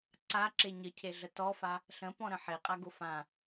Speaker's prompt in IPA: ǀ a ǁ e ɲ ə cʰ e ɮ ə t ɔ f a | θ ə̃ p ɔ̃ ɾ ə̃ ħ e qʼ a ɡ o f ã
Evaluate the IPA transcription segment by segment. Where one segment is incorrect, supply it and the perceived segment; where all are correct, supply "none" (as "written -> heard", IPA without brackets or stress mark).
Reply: θ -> ɬ